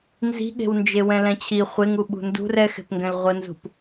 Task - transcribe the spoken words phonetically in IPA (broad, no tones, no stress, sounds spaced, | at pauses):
n z i̤ ɠ e̤ w n d͡ʒ e w ɛ̃ l ɛ̃ t͡ɕʰ i χʷ e ŋ u ɓ ṳ n d ṳ r ɛ x e̤ p ŋ ɡ ɛ̃ l ʁʷ ə n z ṳ p